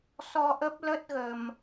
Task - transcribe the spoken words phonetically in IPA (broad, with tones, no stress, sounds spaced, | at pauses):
s ɔ˧ ʔ ə˦˥ p̚ l ə˦˥ t̚ ɣ ə˨˩ m